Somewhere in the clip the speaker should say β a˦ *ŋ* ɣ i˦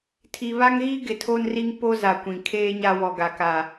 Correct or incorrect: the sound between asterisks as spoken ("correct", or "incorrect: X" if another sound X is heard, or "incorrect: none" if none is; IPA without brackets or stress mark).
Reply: correct